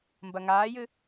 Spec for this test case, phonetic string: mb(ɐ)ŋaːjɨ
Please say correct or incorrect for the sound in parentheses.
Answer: correct